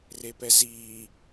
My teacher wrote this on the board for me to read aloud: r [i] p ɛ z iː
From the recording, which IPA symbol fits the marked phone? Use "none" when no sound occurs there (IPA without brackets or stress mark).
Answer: e